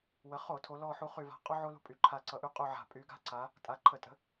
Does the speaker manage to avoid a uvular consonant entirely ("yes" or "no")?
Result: no